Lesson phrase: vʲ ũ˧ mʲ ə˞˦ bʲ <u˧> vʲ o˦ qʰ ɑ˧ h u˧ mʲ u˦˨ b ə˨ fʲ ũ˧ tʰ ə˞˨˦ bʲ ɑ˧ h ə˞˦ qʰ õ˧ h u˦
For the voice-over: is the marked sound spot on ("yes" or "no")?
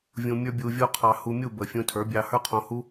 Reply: yes